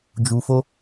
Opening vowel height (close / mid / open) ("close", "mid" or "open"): close